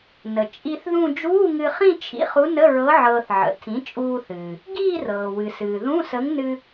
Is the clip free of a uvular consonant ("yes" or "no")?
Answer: no